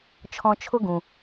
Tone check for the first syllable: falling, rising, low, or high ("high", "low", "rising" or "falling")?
high